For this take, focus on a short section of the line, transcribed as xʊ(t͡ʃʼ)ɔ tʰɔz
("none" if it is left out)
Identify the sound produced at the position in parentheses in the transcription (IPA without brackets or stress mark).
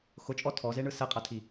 t͡ʃʼ